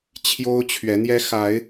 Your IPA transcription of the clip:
t͡ɕʰjo˦ʊ̯t͡ɕʰɥɛ˨˦ n̪jɛ˦xa˨˦ɪ̯

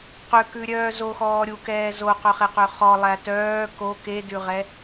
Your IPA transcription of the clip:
qøkʉɾʲœː zoxɔː ɾʲukɛː zoqœχeqø χɔlˠæ tœː ko kedʉʁɛ

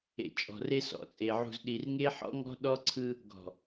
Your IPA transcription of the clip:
ḛ˨ t͡ʃʼɔ̤˨re˦sɔ̰˨t͡sʼe˨ ʕṳ˨zɗi˨rŋe˦ħɔ̰˦ ŋɔ̤˦ɗɔ˦ǀʰɯ˦ | ɡɔ̤˨

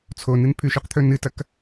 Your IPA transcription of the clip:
t͡sʰonɨn pʰʉʃʉqt̪ʰɵ nɨtɐk

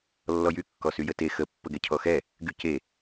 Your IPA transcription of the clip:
lːɔjy kːɔsyjəte xə pːəɡɛcʰɔxɛ | ɡyce

